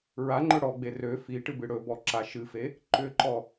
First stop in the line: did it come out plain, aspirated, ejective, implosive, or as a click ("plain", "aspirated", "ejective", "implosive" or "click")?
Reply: click